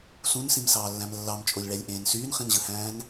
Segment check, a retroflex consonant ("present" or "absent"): present